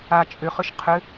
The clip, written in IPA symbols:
a t͡ʃʼ ʏ χ ʏ ʃ qʰ ʏ

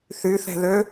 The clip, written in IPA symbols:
θ y θ ɛ̤ ð ø

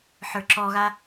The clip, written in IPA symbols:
ħ ə˞ ǁ ɔ ɣ a

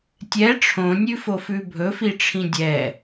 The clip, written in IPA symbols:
tʲ ɛ ʈ͡ʂʰ õ nʲ ʉ f o f ʉ bʱ ɵ f i ʈ͡ʂʰ ĩ dʲ ɛ

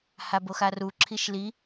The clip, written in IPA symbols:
h a b o x a r u ǁʰ i ʃ l i

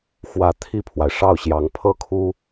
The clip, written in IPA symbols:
x w ä˧˥ t̪ʰ i˥˩ pʰ w a˩ ɪ̯ ʂ ɑ˥˩ ʊ̯ ɕ j ɑ˧˥ ŋ pʰ ɤ˥˩ kʰ u˥

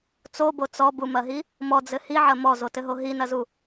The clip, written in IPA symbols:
t͡s o b o t͡s ɔ b u m ɐ ɦ i | m ɔ d͡z ɘ h i ʕ ɐ m ɔ z o t ɘ ɦ o ɦ i n ɐ z u

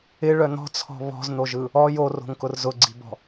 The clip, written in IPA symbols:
ɪ ɭ œ n̪ ɔ̤ t͡sʰ ɔ̤ β ɔ̤ z n̪ o ʒ ɯ | ɔ j o r o̤ ŋ k ʊ r z ʊ ɡ͡ǀ i̤ b ɔ̤

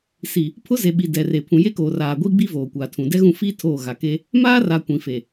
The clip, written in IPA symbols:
s i˨ | pʰ ʊ˦ z e˨ ɓ i˨ d ɛ˨ r e˨ pʰ ũ˨ j e˦ k oː˨ r aː˨ ɡʷ i˦ ɡ͡b i˦ v oː˨ kʷ a˨ tʰ ũ˨ d ɛ˦ ɣ ũ˦˨ f i˦ tʰ oː˦˨ ɣ a˨ k e˦ | m aː˦ r a˨ kʷ ĩ˨ f e˨

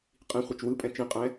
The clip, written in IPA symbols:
qʼ ĩ χʷ ɛ t͡ʃ w ɯ pʼ ɛ̃ t͡ʃ ĩ qʼ ɛ̃

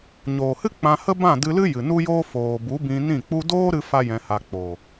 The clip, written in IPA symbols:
ɲ oː˨ h ɨ˦ k͡p ã˧ h ə˦ b ã˦˨ d ɨ˧ l ɨ˦ j ɨ˨ n u˦ j oː˦ f oː˨ b u˨˦ b ĩ˧ n ĩ˦˨ k͡p u˦ d oː˦ ɾ ɨ˦ f a˦ j ɛ̃˧ h a˧ k͡p o˨

